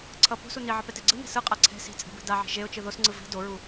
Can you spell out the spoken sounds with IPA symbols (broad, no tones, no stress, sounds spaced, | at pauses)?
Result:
ǀʰ ʌ p o̤ s u n i ʕ ʌ p ɛ t e ɡ͡ǀ ɯ n ɛ̤ s ɯ qʼ a ǀʰ ɛ̤ s i̤ t͡sʼ ɛ̤ b ɛ̤ d a ʕ i̤ ʒ e ʊ̯ t͡ʃ ɯ ð o s ŋ͡ǀ ɯ v i̤ d o ɹ u